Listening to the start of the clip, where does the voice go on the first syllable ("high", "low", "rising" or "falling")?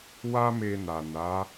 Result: high